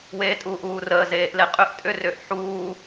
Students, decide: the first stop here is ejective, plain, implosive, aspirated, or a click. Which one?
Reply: ejective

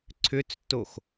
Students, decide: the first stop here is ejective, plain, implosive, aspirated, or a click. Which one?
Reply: click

